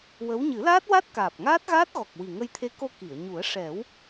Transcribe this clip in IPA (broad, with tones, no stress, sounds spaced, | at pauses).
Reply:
w ə˧˥ w ɲ ɨ˨˩˦ l aː˦˥ t̚ w a˦˥ t̚ k aː˨˩ p̚ ŋ aː˦˥ t̚ ɣ aː˦˥ t̚ ɣ ɔ˨˩ k̚ w i˨˩ ŋ ə˧ j t̪ʰ e˧˥ k o˧ k i˨˩˨ ə̯ ɲ u˨˩˦ ə̯ ʂ ɛ˨˩˦ w